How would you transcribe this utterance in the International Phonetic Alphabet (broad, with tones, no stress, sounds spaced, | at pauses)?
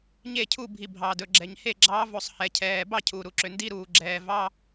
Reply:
ɲ e˥˨ cʰ u˥˨ bʱ i˨ bʱ ɑː˨ d ɵ˨ ɡ͡ǁ ɛ˨ ɲ h e˥˨ ɡ͡ǁ ɑː˧˥ v o˨ sˤ h ɛ˨ cʰ ɛː˨ b ɑ˥˨ cʰ uː˨ ɾ u˨ ǁ ø˨ n d i˧˥˧ ɾ uː˨ ɡ͡ǁ ɛː˨ v ɑ˧˥˧